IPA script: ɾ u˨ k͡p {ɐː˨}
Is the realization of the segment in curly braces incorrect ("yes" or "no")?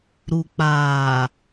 yes